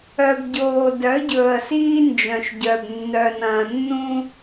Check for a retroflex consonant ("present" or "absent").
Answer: absent